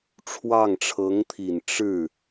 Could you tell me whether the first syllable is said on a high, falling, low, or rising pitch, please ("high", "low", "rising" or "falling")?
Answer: falling